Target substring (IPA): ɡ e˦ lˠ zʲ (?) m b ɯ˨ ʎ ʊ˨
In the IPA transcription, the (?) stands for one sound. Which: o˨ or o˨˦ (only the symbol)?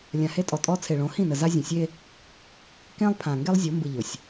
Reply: o˨˦